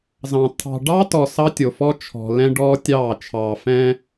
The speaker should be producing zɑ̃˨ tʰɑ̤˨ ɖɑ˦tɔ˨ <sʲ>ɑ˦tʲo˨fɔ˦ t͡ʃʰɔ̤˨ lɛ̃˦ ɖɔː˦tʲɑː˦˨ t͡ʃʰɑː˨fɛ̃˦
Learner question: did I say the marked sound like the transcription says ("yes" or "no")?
no